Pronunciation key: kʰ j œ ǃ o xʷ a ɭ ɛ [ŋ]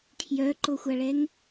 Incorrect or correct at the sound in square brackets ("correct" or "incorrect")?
correct